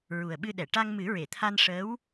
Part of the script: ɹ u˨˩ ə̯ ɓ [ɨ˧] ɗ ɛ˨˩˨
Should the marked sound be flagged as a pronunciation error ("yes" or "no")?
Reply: no